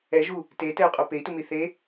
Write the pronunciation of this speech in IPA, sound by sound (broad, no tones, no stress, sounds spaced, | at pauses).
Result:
ɛ ʒ u | t e t ɛ u̯ qʼ o p e i̯ t u m i θ e